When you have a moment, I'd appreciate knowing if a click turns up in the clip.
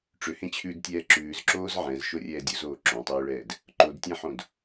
yes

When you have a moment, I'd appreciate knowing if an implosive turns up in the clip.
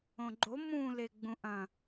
no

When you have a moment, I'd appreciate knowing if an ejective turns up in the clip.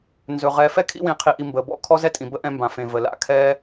yes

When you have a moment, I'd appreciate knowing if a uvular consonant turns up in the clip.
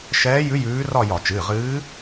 yes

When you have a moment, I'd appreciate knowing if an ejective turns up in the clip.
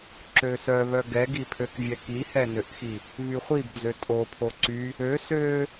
yes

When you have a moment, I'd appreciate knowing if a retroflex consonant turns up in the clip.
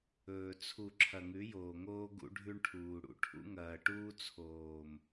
yes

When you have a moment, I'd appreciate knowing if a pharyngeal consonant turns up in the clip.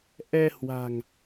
no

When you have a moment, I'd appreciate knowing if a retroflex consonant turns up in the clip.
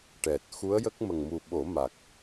yes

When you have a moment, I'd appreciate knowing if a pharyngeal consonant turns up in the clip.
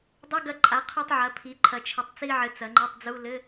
yes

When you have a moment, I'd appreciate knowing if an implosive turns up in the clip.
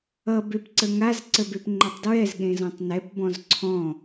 yes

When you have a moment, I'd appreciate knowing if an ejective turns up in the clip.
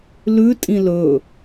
yes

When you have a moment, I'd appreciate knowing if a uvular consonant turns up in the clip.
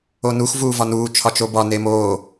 no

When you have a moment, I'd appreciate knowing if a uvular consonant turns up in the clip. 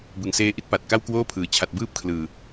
no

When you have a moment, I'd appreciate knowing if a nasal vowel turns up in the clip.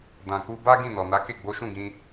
yes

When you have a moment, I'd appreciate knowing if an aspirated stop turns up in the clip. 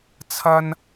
yes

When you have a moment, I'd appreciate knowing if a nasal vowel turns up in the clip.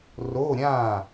yes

